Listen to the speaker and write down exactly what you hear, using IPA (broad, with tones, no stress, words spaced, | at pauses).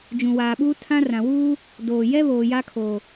d͡ʒũ˨waː˨ɓuː˦ tʰã˦rã˨ wuː˦ | doː˨ jɛ˦βoː˨ ja˦kʰoː˨